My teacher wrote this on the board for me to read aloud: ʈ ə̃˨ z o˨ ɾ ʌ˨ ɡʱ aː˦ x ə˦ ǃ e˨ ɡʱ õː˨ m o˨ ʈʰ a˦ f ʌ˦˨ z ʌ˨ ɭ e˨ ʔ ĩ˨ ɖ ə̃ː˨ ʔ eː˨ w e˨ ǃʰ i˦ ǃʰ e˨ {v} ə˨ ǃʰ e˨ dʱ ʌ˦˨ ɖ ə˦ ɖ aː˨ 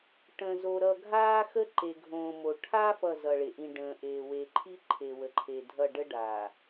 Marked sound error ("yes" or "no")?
yes